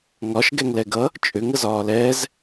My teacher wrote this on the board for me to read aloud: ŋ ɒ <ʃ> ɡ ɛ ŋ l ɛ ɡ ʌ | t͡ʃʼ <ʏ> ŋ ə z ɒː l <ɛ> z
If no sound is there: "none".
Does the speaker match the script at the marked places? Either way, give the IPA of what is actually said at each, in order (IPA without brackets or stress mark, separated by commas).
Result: ʃ, ʏ, ɛː